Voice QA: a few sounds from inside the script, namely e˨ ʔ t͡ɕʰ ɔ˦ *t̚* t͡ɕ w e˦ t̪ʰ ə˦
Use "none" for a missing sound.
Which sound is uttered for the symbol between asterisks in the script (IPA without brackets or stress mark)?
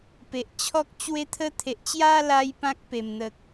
k̚